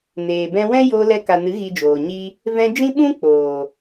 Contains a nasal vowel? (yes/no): yes